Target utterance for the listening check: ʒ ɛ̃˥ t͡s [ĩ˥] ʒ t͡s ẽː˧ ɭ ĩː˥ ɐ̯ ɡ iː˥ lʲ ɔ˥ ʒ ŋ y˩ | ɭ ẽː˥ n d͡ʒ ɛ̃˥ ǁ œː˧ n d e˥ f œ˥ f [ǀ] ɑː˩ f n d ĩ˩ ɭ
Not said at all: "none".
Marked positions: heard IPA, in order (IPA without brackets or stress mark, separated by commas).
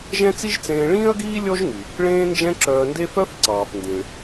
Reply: i˥, ǀ